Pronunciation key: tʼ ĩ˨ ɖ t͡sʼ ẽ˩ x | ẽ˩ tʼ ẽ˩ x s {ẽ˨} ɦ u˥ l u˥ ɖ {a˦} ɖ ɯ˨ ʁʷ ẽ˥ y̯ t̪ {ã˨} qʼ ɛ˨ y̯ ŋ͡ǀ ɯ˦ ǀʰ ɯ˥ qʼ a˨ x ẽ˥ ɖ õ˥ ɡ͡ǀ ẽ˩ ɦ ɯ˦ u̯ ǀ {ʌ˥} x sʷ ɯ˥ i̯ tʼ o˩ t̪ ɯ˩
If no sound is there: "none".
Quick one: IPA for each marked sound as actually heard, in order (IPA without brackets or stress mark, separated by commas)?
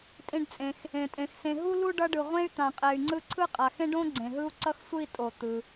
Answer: ẽ˨, ʌ˦, ã˨, ʌ˥